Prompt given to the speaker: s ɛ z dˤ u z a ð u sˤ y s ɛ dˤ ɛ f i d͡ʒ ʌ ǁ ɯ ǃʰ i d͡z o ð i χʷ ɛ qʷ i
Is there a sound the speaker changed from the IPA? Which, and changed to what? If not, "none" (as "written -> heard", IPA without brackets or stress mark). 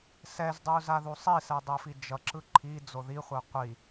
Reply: y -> i